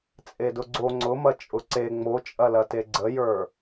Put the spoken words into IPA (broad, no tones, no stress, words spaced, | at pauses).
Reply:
t͡sʼedʊɡ͡ǀo ŋ͡ǀʊmɐ t͡ʃʼʊǀe ŋ͡mot͡ʃʼɐlɐte ɡ͡ǀəjə˞